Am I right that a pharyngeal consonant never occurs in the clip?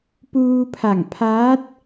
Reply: yes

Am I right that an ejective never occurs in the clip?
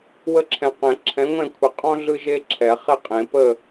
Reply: no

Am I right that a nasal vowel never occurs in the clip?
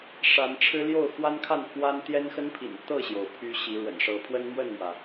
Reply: yes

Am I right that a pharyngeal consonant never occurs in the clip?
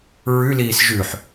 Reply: no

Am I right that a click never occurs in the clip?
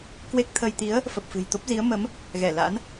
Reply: yes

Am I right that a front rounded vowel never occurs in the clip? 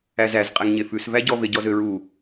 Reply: no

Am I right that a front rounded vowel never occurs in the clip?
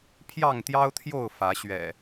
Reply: yes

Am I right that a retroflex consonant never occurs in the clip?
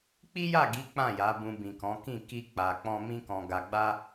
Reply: yes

